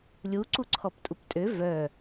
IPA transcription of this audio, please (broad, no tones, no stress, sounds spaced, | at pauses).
lʲ u ǀ u ǀʰ ɔ p tʼ u p tʼ ø v œ